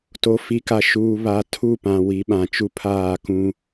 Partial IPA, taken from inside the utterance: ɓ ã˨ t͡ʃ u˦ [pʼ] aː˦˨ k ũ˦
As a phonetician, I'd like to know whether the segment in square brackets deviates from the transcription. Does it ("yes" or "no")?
yes